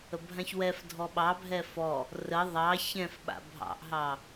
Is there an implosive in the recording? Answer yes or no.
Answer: yes